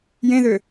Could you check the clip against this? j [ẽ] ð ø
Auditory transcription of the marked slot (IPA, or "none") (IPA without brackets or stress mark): ẽ